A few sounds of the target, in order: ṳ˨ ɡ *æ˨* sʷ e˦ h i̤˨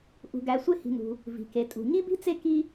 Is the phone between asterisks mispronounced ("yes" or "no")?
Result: no